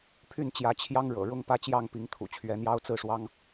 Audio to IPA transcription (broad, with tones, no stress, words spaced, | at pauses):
pʰy˥˨nt͡ɕjä˨˦t͡ɕʰjɑ˦ŋ ɻɤ̰˨˩ɻʊ˦ŋ pä˥˨t͡ɕjɑ˥˨ŋpi˨˦ŋ t̪ʰṵ˨˩t͡ɕʰɥɛ˨˦ n̪jɑ˦ʊ̯t͡sɹ̩˥˨ʂwɑ˦ŋ